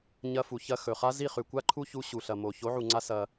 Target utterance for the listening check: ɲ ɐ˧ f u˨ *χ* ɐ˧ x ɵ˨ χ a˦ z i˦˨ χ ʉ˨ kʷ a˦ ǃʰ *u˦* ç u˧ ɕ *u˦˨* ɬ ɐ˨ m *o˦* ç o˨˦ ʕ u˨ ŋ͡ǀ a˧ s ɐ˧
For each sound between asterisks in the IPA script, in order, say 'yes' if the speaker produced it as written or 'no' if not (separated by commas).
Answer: no, yes, no, no